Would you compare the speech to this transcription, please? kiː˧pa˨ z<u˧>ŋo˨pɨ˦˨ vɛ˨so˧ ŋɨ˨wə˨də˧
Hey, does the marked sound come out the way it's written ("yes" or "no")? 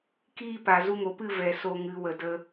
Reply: yes